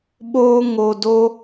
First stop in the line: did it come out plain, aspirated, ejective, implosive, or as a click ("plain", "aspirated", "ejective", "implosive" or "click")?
implosive